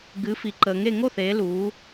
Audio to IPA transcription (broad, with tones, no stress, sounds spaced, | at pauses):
ɡ ɨ˩˧ f i˩ ǃ əː˩ ŋ e˥˩ ŋ o˥˩ θ eː˩˧ l uː˩˧